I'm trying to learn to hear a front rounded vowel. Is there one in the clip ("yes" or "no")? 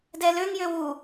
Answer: yes